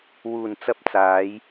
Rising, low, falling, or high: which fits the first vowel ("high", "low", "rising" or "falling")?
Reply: low